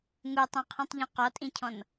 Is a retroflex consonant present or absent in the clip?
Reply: absent